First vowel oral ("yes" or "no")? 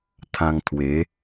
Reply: no